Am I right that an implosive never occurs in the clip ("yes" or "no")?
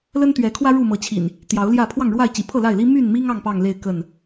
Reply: yes